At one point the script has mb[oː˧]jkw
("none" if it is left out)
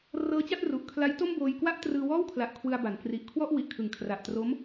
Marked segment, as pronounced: oː˧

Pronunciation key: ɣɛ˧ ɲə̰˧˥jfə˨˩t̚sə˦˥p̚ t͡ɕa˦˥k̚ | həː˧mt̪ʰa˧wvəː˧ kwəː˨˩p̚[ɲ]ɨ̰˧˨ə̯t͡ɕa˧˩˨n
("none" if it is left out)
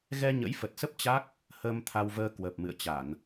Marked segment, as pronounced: m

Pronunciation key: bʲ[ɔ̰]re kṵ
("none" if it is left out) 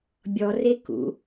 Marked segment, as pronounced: ɔ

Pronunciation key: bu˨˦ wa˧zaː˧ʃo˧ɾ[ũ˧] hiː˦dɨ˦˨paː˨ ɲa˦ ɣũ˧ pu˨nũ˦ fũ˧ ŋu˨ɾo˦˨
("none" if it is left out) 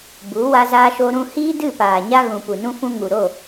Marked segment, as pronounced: ũ˧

